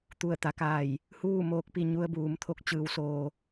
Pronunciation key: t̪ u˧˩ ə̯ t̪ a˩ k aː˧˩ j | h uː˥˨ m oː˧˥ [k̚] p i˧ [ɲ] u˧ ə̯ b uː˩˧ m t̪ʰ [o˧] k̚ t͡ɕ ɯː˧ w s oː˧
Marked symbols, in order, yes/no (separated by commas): yes, yes, yes